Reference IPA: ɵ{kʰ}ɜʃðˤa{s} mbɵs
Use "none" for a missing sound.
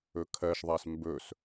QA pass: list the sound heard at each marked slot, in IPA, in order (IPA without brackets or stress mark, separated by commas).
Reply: kʰ, s